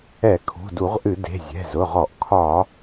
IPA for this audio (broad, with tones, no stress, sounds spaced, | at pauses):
ɛ˧˩˧ kʰ ṳ˩˧˩ d u˧˩˧ ʁ ʔ ɨ˧˩˧ d e̤˩˧˩ zʲ ɛ̤˩˧˩ z ʊ˩˧˩ ʁ ɔ˧˩˧ ʔ kʰ ɒ˧˩˧